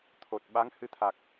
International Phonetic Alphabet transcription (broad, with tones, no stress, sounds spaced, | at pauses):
t̪ʰ o˨˩ t̚ ɓ a˧˥ ŋ h ɨ˧˥ t̪ʰ a˨˩ k̚